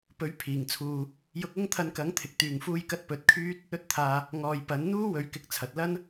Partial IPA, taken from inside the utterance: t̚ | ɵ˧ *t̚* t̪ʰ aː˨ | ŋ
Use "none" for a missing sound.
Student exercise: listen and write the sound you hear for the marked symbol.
t̚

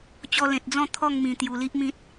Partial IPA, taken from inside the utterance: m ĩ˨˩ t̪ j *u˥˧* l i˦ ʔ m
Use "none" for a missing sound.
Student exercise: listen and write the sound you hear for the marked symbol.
u˨˩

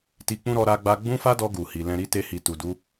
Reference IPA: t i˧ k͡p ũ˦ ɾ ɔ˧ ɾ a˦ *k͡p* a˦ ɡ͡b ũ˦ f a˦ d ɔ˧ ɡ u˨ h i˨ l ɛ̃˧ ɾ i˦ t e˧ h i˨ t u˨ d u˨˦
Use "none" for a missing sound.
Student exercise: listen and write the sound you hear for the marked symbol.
ɡ͡b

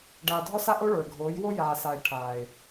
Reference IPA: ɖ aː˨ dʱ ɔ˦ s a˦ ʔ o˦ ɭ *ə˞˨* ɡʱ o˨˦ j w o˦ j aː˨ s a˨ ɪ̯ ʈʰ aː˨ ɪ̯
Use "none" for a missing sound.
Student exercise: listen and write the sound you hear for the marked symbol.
ə˞˨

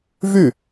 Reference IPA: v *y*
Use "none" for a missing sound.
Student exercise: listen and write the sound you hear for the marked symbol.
y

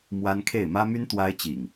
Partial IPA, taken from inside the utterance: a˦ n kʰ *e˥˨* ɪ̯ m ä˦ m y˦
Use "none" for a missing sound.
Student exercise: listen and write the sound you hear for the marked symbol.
e˥˨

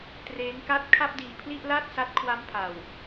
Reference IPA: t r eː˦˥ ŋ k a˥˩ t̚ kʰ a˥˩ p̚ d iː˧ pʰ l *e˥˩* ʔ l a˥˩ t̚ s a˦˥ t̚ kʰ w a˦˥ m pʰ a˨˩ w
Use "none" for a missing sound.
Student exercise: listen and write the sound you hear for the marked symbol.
i˥˩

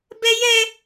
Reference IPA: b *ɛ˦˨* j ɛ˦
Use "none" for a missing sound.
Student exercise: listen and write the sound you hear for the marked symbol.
ɛ˦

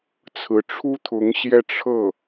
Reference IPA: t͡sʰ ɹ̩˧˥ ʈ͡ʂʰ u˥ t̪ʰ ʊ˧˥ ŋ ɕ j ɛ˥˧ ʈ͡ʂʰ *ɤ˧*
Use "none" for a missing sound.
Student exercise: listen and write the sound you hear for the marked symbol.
ɤ˥˩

